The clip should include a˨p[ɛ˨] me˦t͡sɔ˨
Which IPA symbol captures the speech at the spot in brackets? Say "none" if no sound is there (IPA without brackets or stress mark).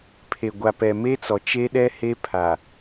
ɛ˨